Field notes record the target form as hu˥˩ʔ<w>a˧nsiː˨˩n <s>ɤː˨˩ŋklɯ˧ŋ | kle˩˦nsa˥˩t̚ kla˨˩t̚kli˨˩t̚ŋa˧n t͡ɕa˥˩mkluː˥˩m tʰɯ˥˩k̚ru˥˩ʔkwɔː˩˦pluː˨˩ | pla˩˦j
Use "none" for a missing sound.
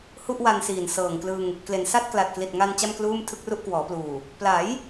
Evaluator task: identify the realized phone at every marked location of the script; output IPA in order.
w, s

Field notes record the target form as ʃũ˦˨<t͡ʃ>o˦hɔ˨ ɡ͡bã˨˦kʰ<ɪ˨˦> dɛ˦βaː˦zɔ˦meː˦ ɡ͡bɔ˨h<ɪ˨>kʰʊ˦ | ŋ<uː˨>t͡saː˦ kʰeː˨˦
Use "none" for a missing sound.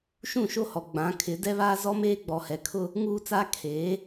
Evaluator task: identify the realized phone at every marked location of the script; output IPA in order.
ʃ, ɪ˨˦, ɛ˨, uː˦

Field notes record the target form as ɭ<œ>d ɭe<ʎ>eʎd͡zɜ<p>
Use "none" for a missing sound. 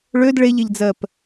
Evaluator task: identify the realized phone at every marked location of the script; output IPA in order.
ø, ʎ, p

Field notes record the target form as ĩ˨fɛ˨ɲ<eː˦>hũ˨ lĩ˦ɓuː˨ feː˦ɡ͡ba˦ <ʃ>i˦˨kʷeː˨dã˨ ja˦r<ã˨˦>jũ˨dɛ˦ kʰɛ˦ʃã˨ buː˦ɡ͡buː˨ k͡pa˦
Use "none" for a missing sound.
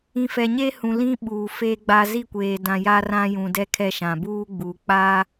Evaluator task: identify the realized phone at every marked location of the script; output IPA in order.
eː˦, z, ã˦

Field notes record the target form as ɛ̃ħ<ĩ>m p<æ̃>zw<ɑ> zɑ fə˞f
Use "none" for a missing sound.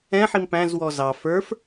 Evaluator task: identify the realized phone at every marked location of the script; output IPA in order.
i, æ̃, ɔ

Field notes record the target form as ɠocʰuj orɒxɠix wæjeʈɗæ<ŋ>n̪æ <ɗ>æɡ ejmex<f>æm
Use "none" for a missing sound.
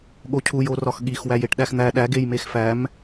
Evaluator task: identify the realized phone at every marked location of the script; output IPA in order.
x, ɗ, f

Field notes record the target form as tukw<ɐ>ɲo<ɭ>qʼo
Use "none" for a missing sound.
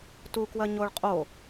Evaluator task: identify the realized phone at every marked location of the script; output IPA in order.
ɐ, ɭ

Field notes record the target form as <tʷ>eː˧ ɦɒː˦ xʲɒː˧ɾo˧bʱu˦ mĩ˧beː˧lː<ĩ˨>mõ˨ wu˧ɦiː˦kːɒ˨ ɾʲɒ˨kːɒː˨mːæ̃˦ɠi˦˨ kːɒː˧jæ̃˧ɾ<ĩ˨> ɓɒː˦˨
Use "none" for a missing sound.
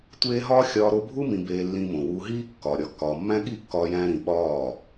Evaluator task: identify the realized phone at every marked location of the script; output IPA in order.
tʷ, ĩ˧, ĩ˨

